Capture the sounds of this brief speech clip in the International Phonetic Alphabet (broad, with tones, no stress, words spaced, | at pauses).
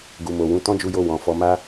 ɡu˨mo˨wũ˨˦ tɔ̃˦d͡ʒu˧jo˧ wɔ̃˨fɔ˧ ma˦